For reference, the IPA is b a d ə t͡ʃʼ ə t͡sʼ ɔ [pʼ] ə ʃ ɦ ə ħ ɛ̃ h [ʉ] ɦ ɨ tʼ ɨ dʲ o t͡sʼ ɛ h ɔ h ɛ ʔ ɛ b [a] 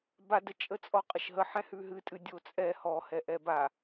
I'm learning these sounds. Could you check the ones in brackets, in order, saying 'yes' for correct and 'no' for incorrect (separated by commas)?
no, yes, yes